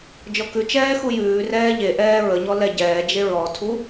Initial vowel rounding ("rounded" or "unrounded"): rounded